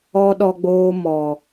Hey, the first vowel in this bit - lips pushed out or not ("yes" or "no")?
yes